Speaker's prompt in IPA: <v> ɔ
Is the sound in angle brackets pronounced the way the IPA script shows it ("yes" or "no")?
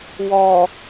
no